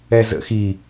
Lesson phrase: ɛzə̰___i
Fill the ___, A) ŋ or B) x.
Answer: B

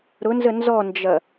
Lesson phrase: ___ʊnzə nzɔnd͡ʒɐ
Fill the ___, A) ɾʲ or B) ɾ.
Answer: B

